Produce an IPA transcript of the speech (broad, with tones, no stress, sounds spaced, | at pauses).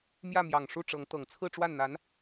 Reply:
m j ä˥˩ m j ɑ˨˩ ŋ ʂ u˥˩ ʈ͡ʂ ɤ˧˥ ŋ t̪ ɤ˨˩ ŋ t͡sʰ ɹ̩˥˧ ʈ͡ʂ w a˥˩ n n̪ a˧˥ n